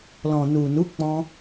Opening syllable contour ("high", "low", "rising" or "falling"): low